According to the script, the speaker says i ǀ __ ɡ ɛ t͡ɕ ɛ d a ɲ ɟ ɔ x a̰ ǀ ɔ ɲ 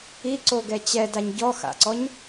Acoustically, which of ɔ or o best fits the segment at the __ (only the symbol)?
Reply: o